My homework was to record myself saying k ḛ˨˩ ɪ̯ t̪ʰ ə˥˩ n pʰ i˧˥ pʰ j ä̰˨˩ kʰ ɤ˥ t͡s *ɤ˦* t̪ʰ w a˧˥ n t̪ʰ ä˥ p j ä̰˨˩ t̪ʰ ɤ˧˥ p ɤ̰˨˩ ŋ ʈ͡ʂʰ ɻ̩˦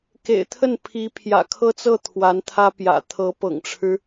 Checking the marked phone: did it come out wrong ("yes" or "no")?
yes